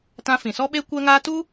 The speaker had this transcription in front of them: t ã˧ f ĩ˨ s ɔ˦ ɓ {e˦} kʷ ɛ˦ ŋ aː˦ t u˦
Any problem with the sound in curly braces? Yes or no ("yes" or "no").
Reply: no